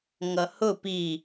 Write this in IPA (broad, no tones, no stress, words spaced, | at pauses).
ŋʌhʊ pi